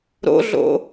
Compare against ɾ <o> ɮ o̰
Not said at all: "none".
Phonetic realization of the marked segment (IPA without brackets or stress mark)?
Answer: o̰